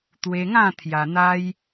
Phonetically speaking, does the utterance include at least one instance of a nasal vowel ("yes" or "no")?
yes